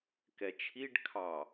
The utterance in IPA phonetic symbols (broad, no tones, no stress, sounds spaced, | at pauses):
k ɛ t͡ʃʰ i ɖ kʰ ɑ